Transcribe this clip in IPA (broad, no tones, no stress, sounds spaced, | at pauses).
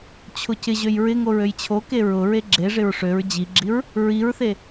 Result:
t͡ɕʰ ʊ c ɪ ʑ ø j ɹ ɪ ŋ o ɹ ø j t͡ɕʰ o k e ɹ ʊ ɹ e ɡ͡ǁ e ʐ ɪ ɹ ʂ ø ɹ d͡ʑ i ɡ͡ǁ i ɹ | ɹ i ɹ θ e